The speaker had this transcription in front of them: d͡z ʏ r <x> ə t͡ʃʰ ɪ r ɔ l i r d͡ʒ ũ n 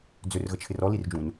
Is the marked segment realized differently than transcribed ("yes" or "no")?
yes